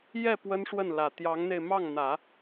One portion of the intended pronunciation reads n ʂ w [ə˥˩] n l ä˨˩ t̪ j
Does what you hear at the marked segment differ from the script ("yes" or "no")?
no